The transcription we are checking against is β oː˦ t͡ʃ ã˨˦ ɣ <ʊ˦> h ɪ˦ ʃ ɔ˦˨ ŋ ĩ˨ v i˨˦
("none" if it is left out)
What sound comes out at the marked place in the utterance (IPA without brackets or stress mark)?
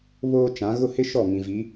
ʊ˦